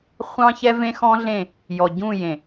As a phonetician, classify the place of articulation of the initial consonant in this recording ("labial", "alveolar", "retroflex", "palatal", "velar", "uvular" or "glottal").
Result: uvular